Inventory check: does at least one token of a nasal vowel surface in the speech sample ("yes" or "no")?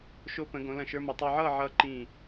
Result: yes